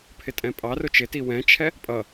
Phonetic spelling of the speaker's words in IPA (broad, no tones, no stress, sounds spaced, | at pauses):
pʰ ɪ tʼ ɛ̃ pʼ ɑ r ʊ t͡ʃ ɪ t i w ɛ̃ t͡ʃʰ ɛ | pʼ ʌ